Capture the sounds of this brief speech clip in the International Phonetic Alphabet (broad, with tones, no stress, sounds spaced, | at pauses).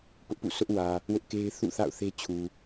p ʊ˦ ʔ p ṵ˦˨ sʰ ʊ˦ ʔ w ä˨ | w ʊ˦ ʔ k e˦ ɪ̯ θ ṵ˦˨ θ a̰˦˨ ʊ̯ θ e˦ t͡ɕʰ u˨